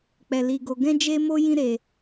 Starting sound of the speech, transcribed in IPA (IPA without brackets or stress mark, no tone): k͡p